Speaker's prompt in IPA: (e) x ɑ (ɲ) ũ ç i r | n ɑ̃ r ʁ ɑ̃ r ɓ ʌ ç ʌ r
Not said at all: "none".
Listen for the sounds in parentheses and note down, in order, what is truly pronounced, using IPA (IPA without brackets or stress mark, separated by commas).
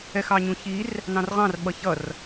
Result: ɛ, ɲ